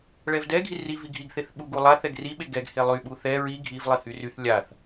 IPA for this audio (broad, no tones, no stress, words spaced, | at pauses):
ɭɛvdɛ ɡʱiri viɡʱiɡ θeθɓuɡ ulˠa θɛɡri ɓeɡɛɡ helˠy ɓuθɛ ɹi ɡʱiv lˠihyryθ lʲaθ